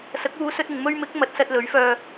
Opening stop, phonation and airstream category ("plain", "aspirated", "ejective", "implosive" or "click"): plain